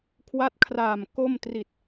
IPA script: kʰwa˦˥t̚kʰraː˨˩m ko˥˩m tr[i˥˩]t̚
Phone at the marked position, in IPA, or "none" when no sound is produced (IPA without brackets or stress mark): i˨˩